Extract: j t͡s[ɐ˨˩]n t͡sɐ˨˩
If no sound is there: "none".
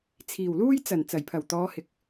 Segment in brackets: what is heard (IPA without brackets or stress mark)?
ɐ˨˩